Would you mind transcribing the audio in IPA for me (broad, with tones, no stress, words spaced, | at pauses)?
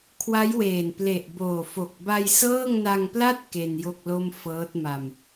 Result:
kʰwa˦˥jweː˨˩n ple˨˩ʔboː˨˩fo˨˩k̚ ba˧jsɤː˥˩ŋna˧ŋpla˥˩t̚ ke˧njo˥˩k̚lo˥˩m fɤː˦˥t̚ma˧m